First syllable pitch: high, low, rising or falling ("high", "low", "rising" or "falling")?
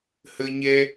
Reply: high